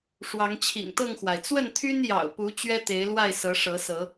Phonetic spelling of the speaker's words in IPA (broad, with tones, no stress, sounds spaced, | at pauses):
ʂ w ɑ˨˦ ŋ t͡ɕʰ ḭ˨˩ ŋ t̪ ɤ˥˨ ŋ x w a˩ ɪ̯ t͡s w ə˥˨ n t̪ʰ y˦ n j ɑ̰˨˩ ʊ̯ p u˨˦ t͡ɕ ɥ ɛ˦ t̪ e˨˦ ɪ̯ l w a˥˨ ɪ̯ s ɤ˨˦ ʂ ɤ˨˦ s ɤ˨˦